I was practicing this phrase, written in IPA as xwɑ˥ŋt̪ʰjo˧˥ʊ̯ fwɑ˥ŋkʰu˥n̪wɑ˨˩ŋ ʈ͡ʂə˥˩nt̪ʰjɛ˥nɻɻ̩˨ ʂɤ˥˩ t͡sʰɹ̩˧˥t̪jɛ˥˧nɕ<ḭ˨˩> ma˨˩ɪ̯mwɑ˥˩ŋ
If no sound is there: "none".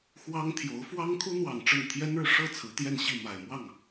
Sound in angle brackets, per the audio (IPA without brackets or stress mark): i˥˩